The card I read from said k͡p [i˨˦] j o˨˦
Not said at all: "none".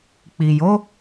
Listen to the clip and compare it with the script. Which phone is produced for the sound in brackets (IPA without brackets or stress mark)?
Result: i˨